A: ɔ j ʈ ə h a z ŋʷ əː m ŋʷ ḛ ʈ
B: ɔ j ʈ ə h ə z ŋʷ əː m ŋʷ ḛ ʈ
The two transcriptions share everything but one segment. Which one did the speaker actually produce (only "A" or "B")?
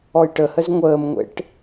B